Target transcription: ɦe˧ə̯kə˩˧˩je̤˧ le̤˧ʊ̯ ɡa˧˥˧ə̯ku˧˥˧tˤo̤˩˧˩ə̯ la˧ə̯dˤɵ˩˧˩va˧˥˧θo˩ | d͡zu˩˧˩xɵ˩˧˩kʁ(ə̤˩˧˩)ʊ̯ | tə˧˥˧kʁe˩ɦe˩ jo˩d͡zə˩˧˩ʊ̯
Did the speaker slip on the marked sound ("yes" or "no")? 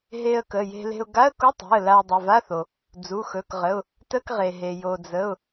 yes